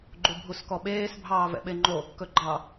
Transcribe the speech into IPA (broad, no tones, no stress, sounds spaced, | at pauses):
ɡ͡ǃ u bʱ u s k ɔ ɓ eː s bʱ ɑː v ɛ̰ ɓ e ŋ͡ǃ o | k ɵ ɡ͡ǃ ɑ